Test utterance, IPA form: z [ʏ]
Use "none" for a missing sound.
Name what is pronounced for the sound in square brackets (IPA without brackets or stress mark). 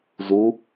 u